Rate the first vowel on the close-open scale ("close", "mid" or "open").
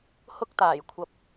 close